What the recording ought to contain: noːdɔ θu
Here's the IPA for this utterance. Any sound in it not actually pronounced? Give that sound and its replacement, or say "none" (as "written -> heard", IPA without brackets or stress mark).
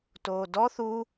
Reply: n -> t